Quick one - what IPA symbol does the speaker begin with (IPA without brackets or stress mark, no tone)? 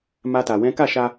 m